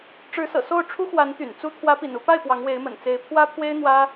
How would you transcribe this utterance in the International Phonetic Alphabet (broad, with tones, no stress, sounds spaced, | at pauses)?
ʈ͡ʂ ɻ̩˧˥ s ɤ̰˨˩ s o˥˩ ʊ̯ ʈ͡ʂʰ u˥ x w a˧˥ n t̪ y̰˨˩ n t͡s u˥ t̪ʰ w ä˧˥ p ḭ˨˩ n u˥˧ p a˥˩ ɪ̯ p w ɑ˧˥ ŋ w e˧˥ ɪ̯ m ə̰˨˩ n t͡s e˧˥ ɪ̯ pʰ w ä˥ pʰ w e˥ ɪ̯ n̪ w ä˥